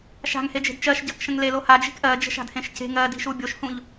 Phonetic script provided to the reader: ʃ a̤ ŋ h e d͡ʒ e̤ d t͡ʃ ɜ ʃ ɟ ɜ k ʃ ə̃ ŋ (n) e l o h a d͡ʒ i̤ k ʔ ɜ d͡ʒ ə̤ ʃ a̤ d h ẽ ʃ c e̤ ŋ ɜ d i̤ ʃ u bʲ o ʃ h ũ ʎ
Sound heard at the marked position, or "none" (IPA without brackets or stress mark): l